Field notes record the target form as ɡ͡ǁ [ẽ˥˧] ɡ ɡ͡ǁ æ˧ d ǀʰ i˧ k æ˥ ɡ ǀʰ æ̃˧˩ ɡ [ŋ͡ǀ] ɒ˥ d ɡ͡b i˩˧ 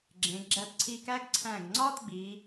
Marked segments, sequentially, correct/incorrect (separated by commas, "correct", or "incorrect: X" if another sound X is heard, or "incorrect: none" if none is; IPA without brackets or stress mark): incorrect: ẽ˩˧, correct